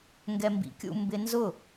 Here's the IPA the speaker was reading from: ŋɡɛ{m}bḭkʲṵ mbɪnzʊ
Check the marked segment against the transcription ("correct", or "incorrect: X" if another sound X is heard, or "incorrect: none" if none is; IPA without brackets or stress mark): correct